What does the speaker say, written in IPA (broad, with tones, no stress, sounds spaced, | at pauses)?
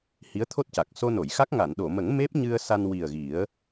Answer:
h i˧˥ ə̯ t̪ʰ o˦˥ t̚ c a˨˩ k̚ s o˧ n o˨˩˨ j x a˦˥ k̚ ŋ a˨˩˨ n ɗ o˨˩˨ m ə˨˩˦ ŋ m e˦˥ p̚ ɲ ɨ˧ ə̯ s a˧ n w i˨˩ ə̯ ɣ i˨˩˦ ə̯